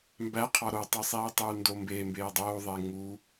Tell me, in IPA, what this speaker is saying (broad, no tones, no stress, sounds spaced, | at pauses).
m b æ qʰ ɒ ɾ o tˤ i sˤ iː tˤ uː n d o m b eː m b eː dˤ oː ðˤ eː ŋ u